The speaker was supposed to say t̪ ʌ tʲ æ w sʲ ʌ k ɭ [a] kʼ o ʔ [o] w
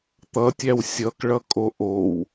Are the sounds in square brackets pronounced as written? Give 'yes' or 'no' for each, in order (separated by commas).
no, yes